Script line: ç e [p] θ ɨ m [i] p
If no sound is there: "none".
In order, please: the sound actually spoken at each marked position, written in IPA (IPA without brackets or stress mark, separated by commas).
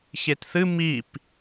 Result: t, i